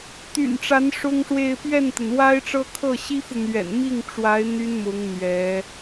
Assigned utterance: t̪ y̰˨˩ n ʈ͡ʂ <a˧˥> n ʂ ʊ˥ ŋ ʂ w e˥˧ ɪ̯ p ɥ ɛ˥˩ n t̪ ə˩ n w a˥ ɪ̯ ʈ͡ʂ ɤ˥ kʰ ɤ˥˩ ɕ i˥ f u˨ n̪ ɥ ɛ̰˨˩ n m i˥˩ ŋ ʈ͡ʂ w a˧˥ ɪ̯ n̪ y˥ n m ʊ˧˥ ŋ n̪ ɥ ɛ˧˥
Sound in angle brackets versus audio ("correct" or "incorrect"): correct